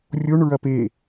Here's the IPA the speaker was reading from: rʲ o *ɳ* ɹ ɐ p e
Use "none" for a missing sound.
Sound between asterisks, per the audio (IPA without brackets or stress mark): ɳ